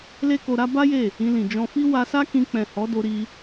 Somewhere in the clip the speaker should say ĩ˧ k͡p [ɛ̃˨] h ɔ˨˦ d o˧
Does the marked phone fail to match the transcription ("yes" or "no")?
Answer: no